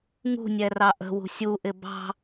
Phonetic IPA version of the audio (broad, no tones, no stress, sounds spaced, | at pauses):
ŋ ṳ nʲ ɛ r ɑ ʔ ə̤ w ṳ sʲ u ʔ ɪ b ɑ̤